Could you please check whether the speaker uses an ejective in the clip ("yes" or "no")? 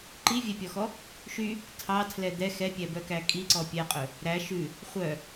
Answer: yes